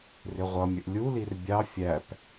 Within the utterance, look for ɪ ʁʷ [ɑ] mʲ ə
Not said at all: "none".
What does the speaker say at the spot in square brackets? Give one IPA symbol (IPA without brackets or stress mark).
ʌ